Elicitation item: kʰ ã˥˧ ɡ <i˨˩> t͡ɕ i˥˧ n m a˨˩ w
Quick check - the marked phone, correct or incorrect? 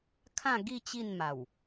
incorrect